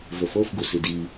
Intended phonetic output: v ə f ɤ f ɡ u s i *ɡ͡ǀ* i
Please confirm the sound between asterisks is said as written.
no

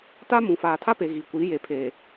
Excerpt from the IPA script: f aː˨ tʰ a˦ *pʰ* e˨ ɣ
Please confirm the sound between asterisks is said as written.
no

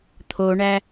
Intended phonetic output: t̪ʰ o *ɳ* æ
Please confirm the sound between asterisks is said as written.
yes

